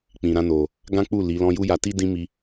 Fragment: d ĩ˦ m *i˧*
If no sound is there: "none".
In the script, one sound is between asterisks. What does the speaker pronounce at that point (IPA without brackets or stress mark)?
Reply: i˧